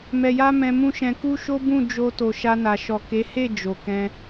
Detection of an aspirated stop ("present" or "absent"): absent